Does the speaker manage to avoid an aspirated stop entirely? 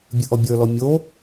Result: yes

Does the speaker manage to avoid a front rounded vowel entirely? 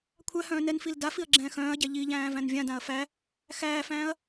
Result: no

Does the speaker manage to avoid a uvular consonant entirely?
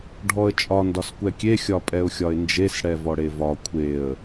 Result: yes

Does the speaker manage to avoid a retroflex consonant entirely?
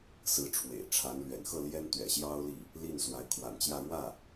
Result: no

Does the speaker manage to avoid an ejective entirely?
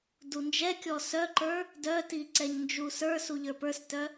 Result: yes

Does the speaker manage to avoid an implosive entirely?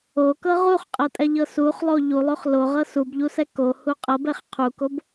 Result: yes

